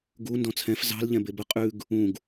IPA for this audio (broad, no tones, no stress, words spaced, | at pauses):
ɡu ndɔ̃t͡sʰɛ̃f zɑ̤l ʎɛ̃bebə qʼʉɡ | ũɡ